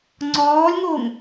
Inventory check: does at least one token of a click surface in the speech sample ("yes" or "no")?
yes